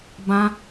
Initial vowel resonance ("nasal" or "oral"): nasal